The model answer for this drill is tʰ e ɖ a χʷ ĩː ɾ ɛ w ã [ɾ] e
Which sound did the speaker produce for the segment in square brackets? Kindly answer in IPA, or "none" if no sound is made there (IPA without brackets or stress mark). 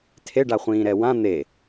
n̪